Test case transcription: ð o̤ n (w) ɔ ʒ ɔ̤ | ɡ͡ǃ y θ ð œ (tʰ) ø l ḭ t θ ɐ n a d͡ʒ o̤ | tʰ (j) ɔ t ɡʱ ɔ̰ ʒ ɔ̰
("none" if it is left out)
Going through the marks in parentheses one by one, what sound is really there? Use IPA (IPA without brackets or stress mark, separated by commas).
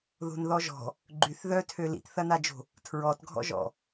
ð, tʰ, ɹ